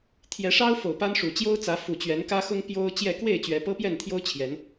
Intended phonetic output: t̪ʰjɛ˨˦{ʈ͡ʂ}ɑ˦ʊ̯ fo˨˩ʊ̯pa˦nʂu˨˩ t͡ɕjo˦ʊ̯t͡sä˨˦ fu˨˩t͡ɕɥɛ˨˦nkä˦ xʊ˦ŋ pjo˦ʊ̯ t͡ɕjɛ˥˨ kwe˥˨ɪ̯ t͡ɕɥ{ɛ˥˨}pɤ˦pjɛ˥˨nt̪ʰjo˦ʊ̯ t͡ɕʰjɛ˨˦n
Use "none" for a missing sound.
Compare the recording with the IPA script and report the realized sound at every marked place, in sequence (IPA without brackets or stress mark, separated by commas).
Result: ʂ, ɛ˨˦